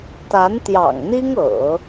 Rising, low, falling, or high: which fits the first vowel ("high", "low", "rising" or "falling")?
rising